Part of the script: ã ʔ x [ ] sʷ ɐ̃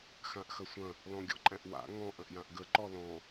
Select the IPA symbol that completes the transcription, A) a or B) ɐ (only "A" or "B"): B